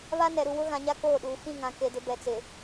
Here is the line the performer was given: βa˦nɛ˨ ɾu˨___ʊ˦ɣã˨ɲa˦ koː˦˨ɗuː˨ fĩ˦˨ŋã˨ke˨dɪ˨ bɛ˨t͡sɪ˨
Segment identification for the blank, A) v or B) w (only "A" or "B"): B